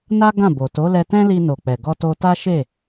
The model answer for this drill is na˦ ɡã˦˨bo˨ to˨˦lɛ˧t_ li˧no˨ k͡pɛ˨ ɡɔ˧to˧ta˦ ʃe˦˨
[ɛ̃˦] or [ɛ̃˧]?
ɛ̃˦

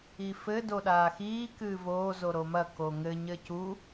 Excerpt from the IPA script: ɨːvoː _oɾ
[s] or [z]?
z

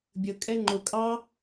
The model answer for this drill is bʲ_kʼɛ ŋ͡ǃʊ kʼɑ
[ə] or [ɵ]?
ə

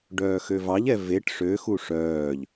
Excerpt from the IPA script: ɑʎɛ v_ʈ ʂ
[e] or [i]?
e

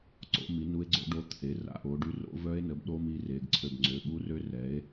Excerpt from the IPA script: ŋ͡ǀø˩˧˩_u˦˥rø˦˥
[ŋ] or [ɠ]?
ɠ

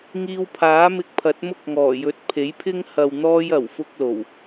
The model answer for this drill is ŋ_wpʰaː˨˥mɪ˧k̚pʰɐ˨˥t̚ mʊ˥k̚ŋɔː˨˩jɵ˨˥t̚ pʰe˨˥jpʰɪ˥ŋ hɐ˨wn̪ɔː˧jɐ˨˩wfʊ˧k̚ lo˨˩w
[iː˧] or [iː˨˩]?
iː˧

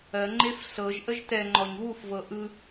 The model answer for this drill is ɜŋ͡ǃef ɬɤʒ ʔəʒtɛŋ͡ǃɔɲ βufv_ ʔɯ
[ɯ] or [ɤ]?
ɤ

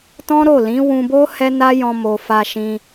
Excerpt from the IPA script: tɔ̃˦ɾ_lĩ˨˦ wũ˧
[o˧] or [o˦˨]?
o˦˨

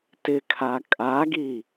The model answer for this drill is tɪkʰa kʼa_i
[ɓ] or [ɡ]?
ɡ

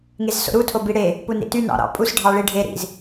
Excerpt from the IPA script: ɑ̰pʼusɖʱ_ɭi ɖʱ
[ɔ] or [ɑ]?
ɑ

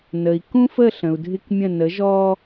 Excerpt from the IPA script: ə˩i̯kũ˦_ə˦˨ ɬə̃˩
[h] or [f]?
f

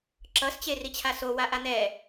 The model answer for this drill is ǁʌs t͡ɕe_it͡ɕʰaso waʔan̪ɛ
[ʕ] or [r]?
r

